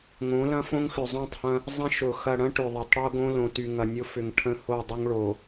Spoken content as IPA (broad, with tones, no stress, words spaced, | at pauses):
ŋõ˨˦lɐ̃˦ fõ˦ŋxʏ˨zˤõ˦˨tˤhɐ̃˦ | zˤɐ̃˦ʃʊ˨ xɐ˨ɽɐ̃˦ ʈʏ˨ ðˤɐ˨tˤɽo˦ɡõ˦lõ˨ ty˨ŋɐ˨nʲʊ˦fʏ˨ŋ ʈʰə̃˦ho˦˨dˤʊ˦ŋ ɭo˨